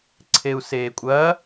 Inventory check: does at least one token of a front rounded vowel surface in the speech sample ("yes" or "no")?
no